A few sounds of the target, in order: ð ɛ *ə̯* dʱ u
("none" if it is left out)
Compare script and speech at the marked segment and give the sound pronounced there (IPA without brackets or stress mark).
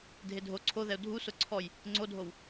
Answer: ʊ̯